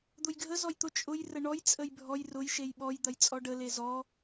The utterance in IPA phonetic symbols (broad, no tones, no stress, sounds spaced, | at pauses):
d̪ ʊ j ɡʱ ə z ɔ j t̪ ʊ t͡ʃʼ ʊ j r ə ɳ ɔ j t͡sʼ ə j bʱ ɔ j r ʊ j ʃ e j ɓ ɔ j d̪ ɐ j t͡sʼ ɔ ɖ ə l e z ɔ